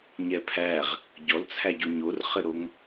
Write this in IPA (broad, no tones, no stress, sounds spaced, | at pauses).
ɲ ɛ pʰ æ ʁ | ɟ ɔ l t͡sʰ æ ɟ o ɲ o r χ ɘ ɾ o ŋ